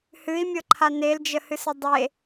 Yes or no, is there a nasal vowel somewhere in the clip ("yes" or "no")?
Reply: no